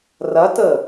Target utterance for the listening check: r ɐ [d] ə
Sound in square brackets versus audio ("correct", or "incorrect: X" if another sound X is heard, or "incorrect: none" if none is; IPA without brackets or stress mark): incorrect: t